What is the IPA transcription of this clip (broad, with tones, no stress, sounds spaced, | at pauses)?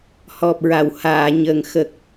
h ɔ˨˩ p̚ ɹ a˨˩˨ w h aː˨˩˨ ɲ ə˨˩ ŋ x ə˨˩ k̚